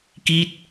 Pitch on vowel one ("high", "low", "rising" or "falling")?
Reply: falling